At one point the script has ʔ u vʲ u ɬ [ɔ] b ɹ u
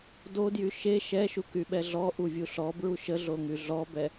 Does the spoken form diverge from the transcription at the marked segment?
no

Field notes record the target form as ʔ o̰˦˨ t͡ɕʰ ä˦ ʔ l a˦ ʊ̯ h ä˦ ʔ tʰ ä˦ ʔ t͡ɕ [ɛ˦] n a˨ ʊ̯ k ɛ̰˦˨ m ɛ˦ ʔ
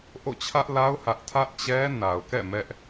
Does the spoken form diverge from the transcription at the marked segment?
no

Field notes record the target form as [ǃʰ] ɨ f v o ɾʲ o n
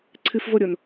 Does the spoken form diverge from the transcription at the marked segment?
yes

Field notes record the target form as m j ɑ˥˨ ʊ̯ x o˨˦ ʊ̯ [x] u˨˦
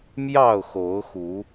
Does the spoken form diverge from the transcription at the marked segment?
no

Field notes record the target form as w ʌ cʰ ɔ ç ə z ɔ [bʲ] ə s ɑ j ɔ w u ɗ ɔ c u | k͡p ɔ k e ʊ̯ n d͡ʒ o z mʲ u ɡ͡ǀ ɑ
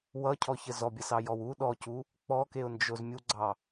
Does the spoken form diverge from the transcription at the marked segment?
no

